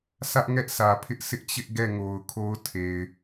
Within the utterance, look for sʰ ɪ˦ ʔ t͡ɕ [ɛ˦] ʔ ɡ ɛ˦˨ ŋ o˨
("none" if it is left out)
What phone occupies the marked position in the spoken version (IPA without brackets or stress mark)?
ɪ˦